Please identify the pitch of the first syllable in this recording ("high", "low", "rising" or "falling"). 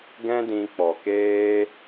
high